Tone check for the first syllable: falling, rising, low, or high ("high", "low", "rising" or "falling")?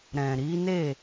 low